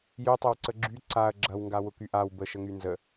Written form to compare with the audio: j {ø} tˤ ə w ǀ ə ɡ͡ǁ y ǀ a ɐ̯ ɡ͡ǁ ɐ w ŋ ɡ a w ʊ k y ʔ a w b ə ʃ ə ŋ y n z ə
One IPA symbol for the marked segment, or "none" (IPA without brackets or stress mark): ø